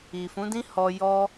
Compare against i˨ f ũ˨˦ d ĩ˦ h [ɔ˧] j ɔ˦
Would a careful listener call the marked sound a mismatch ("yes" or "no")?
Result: no